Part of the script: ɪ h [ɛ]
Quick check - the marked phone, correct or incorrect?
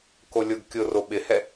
correct